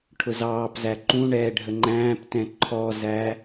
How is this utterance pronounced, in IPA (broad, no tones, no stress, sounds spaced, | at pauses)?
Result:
ʈʰ ʊ z ɑː p z æ ǃ ũ ɳ ɛː ɖʱ ə ŋ͡ǃ æ̃ː p t ɛ̃ ǃʰ ɔ z æ